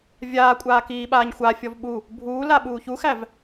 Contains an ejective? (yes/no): yes